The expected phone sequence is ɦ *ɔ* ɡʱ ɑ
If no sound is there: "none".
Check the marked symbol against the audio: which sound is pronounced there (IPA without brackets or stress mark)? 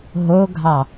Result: o